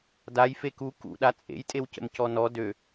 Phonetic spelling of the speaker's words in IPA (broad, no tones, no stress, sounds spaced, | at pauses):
d a j f e k u k ṵ ɗ a t͡sʼ ḛ j tʼ e w c ə̰ m c ɔ n ɔ d ø